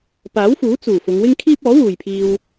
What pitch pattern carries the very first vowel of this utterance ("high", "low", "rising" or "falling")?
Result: rising